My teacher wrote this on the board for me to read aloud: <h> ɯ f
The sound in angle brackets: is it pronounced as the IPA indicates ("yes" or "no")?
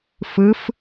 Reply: no